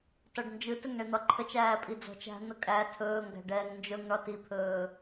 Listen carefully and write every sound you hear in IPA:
t ɒ ɖ n d͡ʒ ɯ t ə ŋ ɳ e n̪ ɒ ǃʰ ə t͡ʃ æː pʼ i d͡z ɔ̤ t͡ʃ æ̤ n̪ ə kʼ æ tʰ ɵː ŋ ɡ æ̤ ɖ ɛː ŋ n d͡ʒ ɵ ŋ ɳ ɒ t i pʰ ɵː

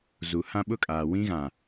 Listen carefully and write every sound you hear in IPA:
z u˨ h ã˦ ɓ ʊ˦ kʼ aː˨ w ĩ˦ ɣ ã˨

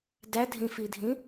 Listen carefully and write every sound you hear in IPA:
d æ dʱ ĩ f i dʱ ĩ

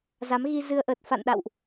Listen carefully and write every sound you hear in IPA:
z a˨˦ m ɣ i˧ z ɨ˧ ə̯ ʔ əː˨˩ t̚ f a̰˧˨ n ɗ a̰˧˨ w ʔ

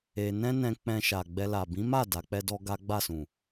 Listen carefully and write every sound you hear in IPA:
e˧ n ɛ̃˦ n ɛ̃˧ k͡p ɛ̃˧ ʃ a˨ ɡ͡b ɛ˧ l a˨ b ĩ˨˦ m a˦˨ d a˨˦ k͡p ɛ˦ d ɔ˦ ɡ a˦ ɡ͡b a˦˨ s ũ˨

